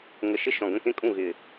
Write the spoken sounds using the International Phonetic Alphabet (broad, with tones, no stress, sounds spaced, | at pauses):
ŋ ə˨˩ ʃ ɪ˥˩ ʃ ɔ̃˨˩ ɡ ə̃˥˩ k ẽ˥˩ kʼ ũ˥˩ ɣ ɪ˨˩